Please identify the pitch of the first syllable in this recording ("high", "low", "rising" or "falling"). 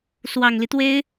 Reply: low